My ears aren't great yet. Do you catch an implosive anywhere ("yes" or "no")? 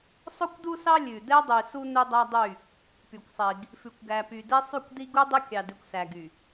no